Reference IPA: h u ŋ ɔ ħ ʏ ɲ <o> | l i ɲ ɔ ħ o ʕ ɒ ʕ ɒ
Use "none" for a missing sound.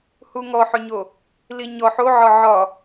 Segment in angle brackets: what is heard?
o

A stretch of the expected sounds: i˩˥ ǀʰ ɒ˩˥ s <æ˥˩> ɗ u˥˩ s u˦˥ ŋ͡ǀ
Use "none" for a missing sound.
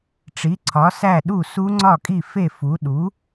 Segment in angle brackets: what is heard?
æ˥˩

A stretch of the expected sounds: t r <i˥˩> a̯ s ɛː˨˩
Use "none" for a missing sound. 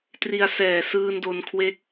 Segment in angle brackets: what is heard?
i˧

